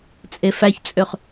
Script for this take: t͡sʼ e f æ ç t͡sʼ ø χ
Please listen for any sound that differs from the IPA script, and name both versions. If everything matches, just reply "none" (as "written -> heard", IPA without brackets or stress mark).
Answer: none